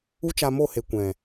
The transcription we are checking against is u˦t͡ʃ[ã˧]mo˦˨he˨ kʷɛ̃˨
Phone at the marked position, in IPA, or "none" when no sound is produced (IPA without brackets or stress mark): a˧